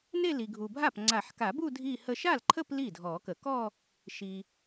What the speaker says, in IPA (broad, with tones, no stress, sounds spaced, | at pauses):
n e˥˧ l i˨ ɡʱ u˨ bʱ a˥˩ p ŋ͡ǀ a˨˩˦ ħ k a˨˩˦ b u˥˧ dʱ i˥˧ h ə˥˧ ʃ a˥˩ l ǃʰ ə˥˧ p l i˥˩ dʱ ɔ˨˩˦ k ə˨˩˦ k ɔ˥˧ | ʃ i˨